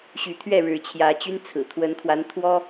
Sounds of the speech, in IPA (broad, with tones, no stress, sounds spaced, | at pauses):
ɕ y˨˦ t̪ʰ ɥ ɛ˥˨ ɻ ɻ̩˨˦ t͡ɕʰ j ä˨˦ t͡ɕ y˦ n t͡sʰ ɹ̩˨˩ t̪ʰ w ə˨˦ n kʰ w a˨˦ n t̪ʰ w ɔ˦